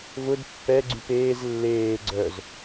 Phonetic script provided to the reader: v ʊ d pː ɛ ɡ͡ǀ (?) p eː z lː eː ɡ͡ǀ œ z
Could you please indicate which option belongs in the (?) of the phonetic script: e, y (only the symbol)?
y